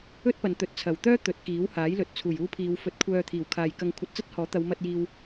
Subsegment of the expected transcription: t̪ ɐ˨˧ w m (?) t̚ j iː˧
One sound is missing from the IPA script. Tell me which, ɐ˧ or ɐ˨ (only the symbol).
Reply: ɐ˧